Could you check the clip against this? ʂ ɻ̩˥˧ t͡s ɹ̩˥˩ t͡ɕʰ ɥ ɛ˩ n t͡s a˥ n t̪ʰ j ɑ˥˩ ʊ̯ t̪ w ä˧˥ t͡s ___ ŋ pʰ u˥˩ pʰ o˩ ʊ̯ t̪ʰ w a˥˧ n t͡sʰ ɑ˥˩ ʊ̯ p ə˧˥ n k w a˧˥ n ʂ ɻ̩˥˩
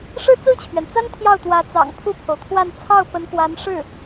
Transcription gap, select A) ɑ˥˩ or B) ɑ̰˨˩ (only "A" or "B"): B